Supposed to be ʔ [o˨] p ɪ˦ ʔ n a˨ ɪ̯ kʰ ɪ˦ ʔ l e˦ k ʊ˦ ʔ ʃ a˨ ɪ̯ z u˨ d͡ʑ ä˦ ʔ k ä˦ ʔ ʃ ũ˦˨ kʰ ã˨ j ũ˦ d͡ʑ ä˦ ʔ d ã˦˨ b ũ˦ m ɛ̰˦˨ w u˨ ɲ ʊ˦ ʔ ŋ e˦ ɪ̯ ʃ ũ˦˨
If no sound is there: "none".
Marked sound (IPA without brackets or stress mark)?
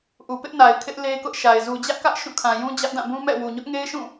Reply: u˨